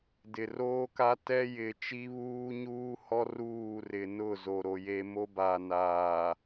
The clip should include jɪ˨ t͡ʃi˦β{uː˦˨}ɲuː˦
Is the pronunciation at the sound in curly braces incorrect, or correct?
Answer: incorrect